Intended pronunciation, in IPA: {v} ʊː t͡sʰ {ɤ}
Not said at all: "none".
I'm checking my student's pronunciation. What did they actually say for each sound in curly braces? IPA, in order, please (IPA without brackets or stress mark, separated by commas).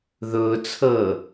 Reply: ð, ɤ